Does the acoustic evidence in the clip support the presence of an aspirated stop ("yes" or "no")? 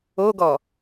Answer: no